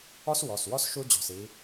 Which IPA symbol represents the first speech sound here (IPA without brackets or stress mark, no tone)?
ɔ